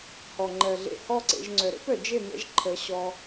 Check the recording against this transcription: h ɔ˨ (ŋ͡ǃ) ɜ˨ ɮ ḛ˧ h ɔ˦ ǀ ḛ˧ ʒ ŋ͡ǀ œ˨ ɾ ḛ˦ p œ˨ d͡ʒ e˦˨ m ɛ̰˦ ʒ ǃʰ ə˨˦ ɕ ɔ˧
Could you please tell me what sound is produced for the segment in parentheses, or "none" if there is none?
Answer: ŋ͡ǃ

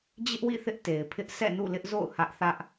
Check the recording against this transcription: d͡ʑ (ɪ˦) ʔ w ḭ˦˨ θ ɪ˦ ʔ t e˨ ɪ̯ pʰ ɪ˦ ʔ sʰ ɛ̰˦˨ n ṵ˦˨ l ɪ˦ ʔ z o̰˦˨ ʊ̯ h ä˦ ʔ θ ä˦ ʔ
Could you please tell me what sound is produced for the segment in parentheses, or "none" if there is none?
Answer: ɪ˦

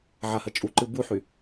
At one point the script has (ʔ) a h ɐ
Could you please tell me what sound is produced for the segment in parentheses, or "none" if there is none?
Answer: ʕ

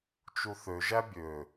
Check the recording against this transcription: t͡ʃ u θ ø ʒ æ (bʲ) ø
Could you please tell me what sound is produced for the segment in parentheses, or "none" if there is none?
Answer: bʲ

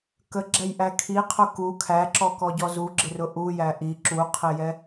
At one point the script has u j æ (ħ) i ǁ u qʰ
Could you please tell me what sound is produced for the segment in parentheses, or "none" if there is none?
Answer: ʔ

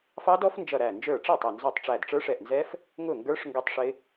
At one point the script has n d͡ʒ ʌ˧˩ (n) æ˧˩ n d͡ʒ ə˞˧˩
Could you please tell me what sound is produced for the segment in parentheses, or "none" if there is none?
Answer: ɾ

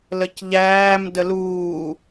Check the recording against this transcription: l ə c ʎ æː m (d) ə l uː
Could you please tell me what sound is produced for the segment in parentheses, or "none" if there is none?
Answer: d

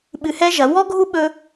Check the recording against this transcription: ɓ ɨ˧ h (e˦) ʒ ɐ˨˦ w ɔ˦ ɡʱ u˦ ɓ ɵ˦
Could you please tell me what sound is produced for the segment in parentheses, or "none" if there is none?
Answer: ɛ˦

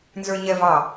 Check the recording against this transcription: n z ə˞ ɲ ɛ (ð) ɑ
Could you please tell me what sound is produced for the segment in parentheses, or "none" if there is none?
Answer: v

